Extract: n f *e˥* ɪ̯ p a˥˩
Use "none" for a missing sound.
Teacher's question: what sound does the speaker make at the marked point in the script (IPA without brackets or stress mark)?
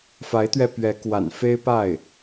e˥